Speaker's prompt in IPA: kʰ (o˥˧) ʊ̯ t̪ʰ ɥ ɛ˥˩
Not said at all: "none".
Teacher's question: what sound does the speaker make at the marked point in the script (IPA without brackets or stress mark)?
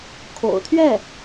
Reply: o̰˨˩